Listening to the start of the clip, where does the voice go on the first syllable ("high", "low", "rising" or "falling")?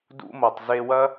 high